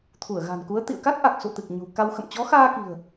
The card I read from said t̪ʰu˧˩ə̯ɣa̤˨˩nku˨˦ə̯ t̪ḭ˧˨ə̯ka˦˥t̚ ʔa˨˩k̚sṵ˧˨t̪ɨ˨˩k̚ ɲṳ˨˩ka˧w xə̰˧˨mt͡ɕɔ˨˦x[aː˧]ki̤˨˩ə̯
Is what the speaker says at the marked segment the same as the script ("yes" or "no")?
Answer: yes